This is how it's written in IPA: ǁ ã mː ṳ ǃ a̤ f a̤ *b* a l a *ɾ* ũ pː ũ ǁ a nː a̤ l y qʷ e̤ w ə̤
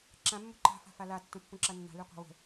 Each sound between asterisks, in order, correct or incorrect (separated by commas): incorrect, incorrect